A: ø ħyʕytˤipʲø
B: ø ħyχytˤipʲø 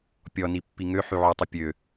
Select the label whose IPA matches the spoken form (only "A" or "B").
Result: A